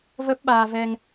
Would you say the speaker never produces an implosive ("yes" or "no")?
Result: no